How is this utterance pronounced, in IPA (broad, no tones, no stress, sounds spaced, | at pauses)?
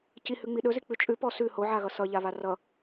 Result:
c i h ʉ ŋ͡m i ɗ ɵ z i k͡p ʉ t͡ʃʼ ʉ p ɔ s ʉ h o ʕ a ɣ ʌ s ʌ ʎ a β a r ʌ